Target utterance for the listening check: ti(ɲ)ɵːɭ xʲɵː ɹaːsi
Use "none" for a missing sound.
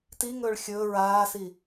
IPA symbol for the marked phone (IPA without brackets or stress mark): ŋ